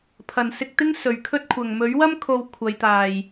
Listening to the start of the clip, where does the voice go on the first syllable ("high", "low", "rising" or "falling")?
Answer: low